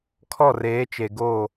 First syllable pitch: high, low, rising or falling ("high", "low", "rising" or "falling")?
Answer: falling